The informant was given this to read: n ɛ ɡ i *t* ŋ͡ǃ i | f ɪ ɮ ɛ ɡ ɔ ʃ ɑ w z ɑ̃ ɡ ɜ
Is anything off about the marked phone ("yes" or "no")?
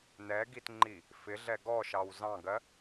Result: no